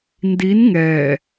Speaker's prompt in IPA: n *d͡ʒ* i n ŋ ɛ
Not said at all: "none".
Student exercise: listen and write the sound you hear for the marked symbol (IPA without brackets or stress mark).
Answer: d